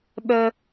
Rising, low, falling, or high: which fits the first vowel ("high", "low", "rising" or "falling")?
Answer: high